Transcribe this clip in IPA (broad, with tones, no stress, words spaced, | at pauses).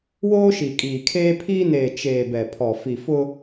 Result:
woː˦ʃi˨ kʼiː˨kʰeː˦ pʰiː˦ neː˨ t͡ʃeː˨ bɛ˨pʰɔ˨ fi˨fʊ˦